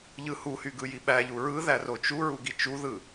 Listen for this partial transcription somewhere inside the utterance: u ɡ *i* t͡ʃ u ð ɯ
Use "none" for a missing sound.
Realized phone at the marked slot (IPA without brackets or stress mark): i